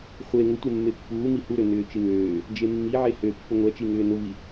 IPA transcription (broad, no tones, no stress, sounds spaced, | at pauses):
χʷ e ŋ ʊ tʷ e mː e pː uː m i h u ɾ ø n ʏː t͡ʃ i ŋ øː | d͡ʒ e mː i ʕ e h ø pː ʊ ŋʷ ɛ t͡ʃ i ŋ ʏː n ʊ v i